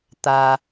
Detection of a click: absent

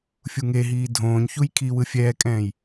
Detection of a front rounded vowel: absent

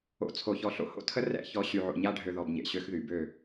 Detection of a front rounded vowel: present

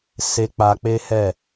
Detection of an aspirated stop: absent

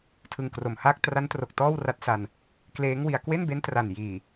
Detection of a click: absent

